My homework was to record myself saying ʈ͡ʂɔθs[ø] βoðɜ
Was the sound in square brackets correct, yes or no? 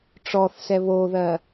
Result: no